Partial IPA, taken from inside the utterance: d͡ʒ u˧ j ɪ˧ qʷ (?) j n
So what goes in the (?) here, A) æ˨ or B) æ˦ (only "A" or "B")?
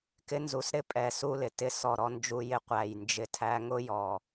A